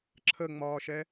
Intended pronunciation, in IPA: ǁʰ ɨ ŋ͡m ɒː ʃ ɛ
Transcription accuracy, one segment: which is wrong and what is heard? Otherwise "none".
ɨ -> ə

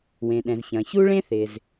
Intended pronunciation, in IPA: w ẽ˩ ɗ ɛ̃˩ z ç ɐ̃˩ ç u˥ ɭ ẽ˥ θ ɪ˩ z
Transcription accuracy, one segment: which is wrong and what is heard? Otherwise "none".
none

